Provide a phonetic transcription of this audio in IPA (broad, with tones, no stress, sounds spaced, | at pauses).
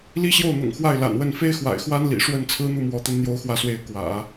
l i˥ ɕ j o˥˩ ʊ̯ n̪ ʊ̰˨˩ ŋ x w a˥˩ ɪ̯ l a̰˨˩ n w ə˥˩ n f e˥ ɪ̯ x w a̰˨˩ ɪ̯ x w a˥ n l ḭ˨˩ ʂ w ə˥˩ n t͡sʰ ɹ̩˥ n̪ u˥˩ m w ɔ˧˥ t̪ ə˧˥ n n̪ j o˧˥ ʊ̯ x w ä˧˥ s w e˧˥ ɪ̯ k w ä̰˨˩˦